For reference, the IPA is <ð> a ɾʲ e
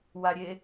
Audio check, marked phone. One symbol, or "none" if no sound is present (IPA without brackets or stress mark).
w